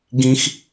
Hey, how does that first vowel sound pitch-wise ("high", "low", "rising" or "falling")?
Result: high